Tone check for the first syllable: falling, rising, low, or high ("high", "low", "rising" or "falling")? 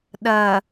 low